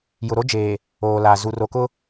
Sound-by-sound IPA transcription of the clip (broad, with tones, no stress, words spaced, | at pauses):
jʊ˨ɾo˦d͡ʒeː˨ | oː˨la˨ zu˨ro˨kʊ˦